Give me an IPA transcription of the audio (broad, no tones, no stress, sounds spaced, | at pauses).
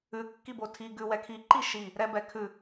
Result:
ʉ kː i b o tʰ i ɡ ʉ w ɛ kʰ i ǃ i ʃ i | ɾ ɛ b ɛ kʰ ʉ